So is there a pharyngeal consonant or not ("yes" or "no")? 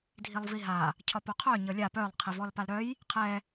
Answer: no